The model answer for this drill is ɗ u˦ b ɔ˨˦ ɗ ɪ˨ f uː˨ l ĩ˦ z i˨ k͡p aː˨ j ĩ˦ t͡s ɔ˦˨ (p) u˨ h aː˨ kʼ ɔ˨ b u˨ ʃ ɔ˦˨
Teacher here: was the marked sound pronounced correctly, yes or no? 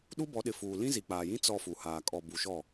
no